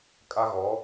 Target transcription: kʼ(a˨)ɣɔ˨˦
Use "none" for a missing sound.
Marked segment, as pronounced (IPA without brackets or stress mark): a˦